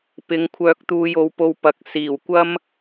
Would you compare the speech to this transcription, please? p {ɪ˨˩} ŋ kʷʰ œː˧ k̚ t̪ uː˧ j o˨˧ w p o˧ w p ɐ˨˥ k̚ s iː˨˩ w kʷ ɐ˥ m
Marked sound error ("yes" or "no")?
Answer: yes